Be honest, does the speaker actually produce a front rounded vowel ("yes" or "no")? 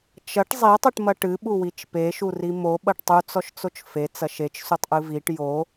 no